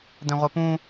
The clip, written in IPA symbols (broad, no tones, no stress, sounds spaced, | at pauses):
d ɛ̃ ʁʷ ɛ p ũ